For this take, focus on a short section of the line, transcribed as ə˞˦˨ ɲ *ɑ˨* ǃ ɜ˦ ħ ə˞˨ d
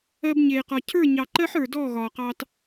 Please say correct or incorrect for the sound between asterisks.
correct